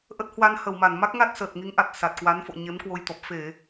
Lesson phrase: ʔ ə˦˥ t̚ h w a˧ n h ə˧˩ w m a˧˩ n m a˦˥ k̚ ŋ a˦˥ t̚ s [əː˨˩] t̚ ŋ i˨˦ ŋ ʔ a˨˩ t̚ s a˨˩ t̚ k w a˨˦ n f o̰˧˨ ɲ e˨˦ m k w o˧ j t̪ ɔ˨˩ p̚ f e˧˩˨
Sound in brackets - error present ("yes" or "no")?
no